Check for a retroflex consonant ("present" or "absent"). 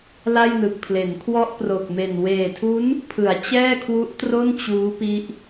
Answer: absent